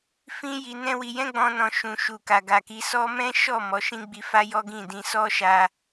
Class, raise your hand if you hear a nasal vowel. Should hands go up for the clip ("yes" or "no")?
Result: yes